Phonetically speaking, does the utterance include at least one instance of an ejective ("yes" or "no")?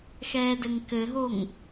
no